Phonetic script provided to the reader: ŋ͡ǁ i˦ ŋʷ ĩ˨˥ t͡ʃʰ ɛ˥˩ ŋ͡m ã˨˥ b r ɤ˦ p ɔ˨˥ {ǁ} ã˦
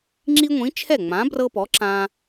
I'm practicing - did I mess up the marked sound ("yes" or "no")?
no